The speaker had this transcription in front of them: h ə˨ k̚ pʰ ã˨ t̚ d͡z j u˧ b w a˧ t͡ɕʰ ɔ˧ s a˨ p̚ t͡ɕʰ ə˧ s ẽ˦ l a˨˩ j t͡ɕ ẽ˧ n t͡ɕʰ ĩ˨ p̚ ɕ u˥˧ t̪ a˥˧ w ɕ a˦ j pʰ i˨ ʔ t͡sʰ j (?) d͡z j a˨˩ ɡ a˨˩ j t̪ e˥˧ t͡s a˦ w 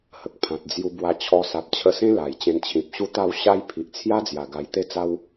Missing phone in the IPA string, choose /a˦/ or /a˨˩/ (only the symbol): a˦